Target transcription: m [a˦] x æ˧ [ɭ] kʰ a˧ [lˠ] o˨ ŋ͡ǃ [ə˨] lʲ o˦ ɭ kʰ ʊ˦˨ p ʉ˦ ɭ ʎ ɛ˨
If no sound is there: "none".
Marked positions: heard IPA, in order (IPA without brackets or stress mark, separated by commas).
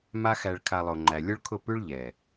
a˦, ɭ, lˠ, æ˨